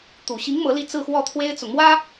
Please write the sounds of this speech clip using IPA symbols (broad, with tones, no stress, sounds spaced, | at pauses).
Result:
t̪ u˨˩ ɕ i˧˥ ŋ m ɤ˧˥ l i˥˧ t͡s ɹ̩˥˧ x w ɔ˥˩ t̪ʰ w e˥ ɪ̯ t͡s ʊ˨ ŋ m w ä˥